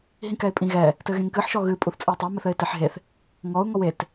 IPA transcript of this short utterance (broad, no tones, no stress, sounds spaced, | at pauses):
ɦ ĩ k ɛ ɪ̯ pʼ ĩ ɣ ɛ | t ɘ ɣ ẽ ŋ k ɨ ħ ʃ ɔ ɣ ɨ pʼ u θ t͡sʼ ɨ ɪ̯ tˤ a m ɘ θ ɘ ɪ̯ t e ħ ɦ e θ | ŋ ɔ ʊ̯ ŋ ɔ w e t